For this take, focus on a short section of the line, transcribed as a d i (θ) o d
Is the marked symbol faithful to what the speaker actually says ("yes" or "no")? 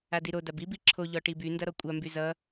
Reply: no